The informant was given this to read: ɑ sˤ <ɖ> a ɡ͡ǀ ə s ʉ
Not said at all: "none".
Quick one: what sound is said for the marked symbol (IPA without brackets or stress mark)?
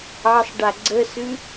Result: ɖ